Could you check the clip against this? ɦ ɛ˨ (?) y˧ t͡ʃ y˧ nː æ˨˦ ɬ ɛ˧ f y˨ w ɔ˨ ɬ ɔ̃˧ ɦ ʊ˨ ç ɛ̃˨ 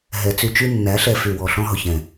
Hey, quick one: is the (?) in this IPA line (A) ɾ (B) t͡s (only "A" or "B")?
B